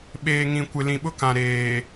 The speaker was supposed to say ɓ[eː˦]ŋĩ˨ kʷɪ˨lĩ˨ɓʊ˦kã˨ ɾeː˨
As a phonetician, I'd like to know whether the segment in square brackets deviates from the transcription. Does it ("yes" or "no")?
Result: yes